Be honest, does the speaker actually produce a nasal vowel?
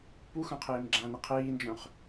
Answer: yes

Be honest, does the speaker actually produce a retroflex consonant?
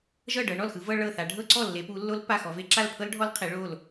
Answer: yes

